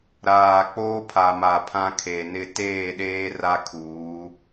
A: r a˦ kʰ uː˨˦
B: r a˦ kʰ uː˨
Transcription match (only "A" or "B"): A